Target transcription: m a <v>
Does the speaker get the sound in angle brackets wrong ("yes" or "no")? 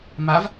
no